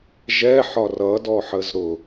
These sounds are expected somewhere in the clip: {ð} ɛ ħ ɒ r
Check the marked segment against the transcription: incorrect: ʒ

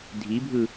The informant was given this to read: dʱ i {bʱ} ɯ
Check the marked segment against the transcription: correct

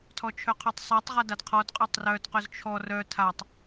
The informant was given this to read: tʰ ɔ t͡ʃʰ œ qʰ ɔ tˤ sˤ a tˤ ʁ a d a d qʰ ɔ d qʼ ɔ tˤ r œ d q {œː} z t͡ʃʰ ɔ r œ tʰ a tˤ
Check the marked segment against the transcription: incorrect: œ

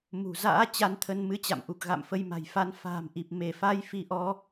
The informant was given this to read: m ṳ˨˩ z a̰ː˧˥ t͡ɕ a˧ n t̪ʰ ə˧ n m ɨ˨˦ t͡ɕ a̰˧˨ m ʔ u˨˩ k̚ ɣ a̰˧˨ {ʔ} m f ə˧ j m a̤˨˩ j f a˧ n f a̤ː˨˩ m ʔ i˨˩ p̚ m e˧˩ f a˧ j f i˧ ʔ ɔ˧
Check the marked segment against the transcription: incorrect: none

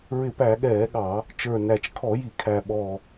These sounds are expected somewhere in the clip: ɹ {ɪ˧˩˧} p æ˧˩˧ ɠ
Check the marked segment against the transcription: correct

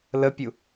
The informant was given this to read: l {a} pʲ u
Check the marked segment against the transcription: incorrect: ə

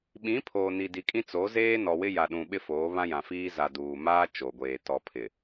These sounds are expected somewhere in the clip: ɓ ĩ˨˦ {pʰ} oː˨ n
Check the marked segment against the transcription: correct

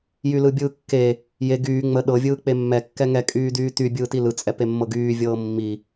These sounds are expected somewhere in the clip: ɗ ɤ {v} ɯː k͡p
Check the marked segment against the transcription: incorrect: vʲ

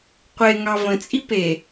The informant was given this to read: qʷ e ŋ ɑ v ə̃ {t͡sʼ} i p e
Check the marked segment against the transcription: correct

